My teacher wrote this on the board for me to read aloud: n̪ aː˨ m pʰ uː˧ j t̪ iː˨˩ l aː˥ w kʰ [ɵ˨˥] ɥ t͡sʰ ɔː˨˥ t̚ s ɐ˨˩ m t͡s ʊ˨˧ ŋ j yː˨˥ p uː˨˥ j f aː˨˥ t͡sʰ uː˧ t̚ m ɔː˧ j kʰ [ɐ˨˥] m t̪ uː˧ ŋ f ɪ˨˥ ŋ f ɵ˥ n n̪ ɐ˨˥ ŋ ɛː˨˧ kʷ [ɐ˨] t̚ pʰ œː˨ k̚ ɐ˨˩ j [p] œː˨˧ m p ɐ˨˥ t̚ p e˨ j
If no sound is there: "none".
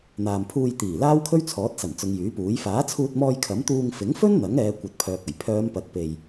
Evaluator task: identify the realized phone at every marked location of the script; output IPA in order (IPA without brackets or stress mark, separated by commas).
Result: ɵ˥, ɐ˨˥, ɐ˨, pʰ